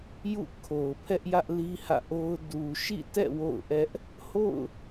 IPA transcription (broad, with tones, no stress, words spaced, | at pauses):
jṵ˦˨ kʰo˨ʊ̯pʰɛ˦ʔjä˦ʔ li˦hä̰˦˨ʔo˦ʊ̯ du˨ʃḭ˦˨tɛ̰˦˨ wo̰˦˨ʊ̯ʔɛ˦ʔ | ho̰˦˨ʊ̯